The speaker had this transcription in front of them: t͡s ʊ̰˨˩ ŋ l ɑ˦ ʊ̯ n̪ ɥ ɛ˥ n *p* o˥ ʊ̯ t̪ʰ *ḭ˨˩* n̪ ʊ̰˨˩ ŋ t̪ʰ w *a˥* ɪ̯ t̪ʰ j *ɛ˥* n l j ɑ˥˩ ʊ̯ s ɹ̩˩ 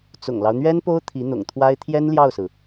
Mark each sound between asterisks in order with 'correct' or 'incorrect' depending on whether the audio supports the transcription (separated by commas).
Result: correct, incorrect, correct, correct